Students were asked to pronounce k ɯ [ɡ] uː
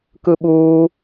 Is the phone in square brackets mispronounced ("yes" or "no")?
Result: yes